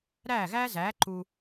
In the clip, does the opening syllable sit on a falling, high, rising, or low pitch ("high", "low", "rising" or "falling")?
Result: falling